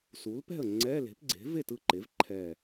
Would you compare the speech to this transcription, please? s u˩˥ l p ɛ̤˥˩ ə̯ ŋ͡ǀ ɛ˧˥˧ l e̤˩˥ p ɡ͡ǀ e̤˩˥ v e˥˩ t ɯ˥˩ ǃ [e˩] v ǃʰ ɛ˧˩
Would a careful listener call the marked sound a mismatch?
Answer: yes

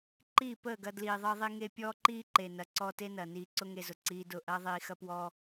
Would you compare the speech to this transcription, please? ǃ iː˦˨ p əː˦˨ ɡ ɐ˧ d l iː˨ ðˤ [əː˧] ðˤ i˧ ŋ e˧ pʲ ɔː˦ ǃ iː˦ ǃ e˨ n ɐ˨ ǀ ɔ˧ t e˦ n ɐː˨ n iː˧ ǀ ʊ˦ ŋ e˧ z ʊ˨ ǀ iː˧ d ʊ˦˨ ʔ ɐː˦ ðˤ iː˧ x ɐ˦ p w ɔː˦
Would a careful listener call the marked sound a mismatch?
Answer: no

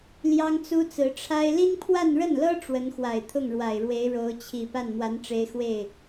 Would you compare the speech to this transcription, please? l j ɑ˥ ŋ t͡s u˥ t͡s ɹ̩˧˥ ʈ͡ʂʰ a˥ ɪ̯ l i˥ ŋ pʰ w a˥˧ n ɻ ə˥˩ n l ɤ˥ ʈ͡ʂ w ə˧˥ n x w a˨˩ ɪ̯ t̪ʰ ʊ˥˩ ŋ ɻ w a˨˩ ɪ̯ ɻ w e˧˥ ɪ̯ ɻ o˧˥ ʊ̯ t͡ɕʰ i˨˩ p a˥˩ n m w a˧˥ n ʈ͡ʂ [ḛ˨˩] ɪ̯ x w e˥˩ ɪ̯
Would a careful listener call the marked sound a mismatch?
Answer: yes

